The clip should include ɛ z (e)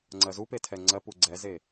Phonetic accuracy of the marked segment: correct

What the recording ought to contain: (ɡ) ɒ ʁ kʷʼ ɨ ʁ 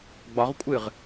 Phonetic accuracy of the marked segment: incorrect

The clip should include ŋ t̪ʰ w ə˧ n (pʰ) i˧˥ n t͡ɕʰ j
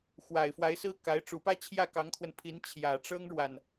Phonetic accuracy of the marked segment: correct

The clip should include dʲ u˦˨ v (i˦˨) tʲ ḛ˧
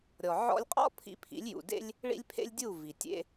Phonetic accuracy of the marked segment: incorrect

